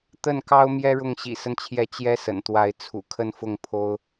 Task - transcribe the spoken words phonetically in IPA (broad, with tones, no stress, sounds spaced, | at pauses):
t̪ ə˥˩ n k ɑ˥ ʊ̯ m j ɛ˥ ɻ ʊ˥˩ ŋ ɕ ḭ˨˩ s ə˦ n t͡ɕʰ j ɛ˧˥ t͡ɕ j ɛ˥ s ə̰˨˩ n t̪ w a˧˥ ɪ̯ t͡sʰ ṵ˨˩ kʰ ə˥˧ n f ʊ˥˩ ŋ pʰ o˥ ʊ̯